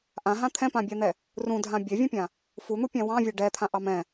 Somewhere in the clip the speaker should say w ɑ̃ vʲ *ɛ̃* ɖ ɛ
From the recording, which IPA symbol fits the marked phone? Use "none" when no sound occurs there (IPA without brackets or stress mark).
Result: ɛ